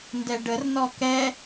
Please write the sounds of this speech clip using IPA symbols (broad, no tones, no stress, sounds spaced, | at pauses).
n d ɛ ɖ ə r n ɔ k ɛ